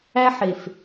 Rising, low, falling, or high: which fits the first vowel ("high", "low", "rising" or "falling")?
high